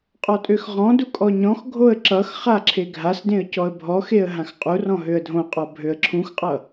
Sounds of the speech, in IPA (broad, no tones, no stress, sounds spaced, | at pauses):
qʼ ɔ tʼ ø x ʁ ɔ̃ d u kʼ ɔ ɲ ɔ̃ x ɡʱ o ə̯ ǁ ʌ x χ a ǁʰ e ɡʱ a s d ẽ ə̯ c ɔ ə̯ bʱ ɔ x e ə̯ ɦ ã x qʼ u r ɔ̃ ɦ ø ə̯ dʱ õ qʼ ɔ bʱ ø ə̯ ǁʰ ũ x qʼ ʌ